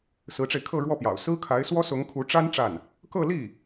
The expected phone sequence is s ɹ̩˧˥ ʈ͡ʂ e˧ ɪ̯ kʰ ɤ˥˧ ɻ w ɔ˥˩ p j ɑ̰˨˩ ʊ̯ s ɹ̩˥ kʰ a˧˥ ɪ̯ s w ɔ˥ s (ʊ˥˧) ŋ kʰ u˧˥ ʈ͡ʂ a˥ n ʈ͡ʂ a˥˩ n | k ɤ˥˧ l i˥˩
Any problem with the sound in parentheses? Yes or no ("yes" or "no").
yes